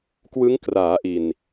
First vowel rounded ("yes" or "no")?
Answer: no